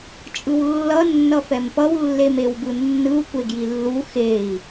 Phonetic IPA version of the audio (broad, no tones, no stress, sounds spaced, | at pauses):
t͡ʃʼ ɯ w lː ʌ nː ʌ f ɛ m p ʌ w lː e m e w b ɯ nː ɯ u̯ kʷ e ɡ j i lː u x e i̯